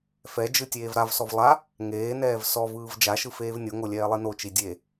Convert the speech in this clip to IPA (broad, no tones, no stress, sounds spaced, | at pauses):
f ɛ d͡ʒ ɯ tʲ eː v ɾ a v s ɔ v lˠ a | ŋ eː n ɛː v s ɔ v ɯː v d͡ʒ a ʃ ɯ f eː v nʲ o ŋ o lʲ ɛː lˠ i n o t͡ʃ i dʲ e